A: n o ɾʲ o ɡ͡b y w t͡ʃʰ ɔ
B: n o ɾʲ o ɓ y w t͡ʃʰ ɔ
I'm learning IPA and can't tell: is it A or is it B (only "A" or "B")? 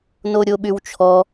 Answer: B